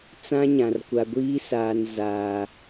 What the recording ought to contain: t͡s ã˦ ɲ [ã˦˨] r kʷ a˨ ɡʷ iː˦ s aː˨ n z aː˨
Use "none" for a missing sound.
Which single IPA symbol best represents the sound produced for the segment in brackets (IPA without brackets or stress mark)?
ã˨